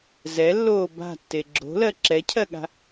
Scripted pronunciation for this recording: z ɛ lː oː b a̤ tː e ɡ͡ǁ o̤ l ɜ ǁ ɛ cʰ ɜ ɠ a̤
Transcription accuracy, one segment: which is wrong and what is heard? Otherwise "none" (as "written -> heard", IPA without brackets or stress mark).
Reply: none